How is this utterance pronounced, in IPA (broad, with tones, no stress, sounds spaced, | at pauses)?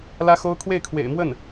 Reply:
l ä˥ x o˥ ʊ̯ kʰ w e˥˩ ɪ̯ kʰ w ḛ˨˩ ɪ̯ m w ə˥˩ n